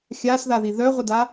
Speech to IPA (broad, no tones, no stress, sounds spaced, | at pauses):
xʲ a s ð a ð i ð œ ʁʷ ə d a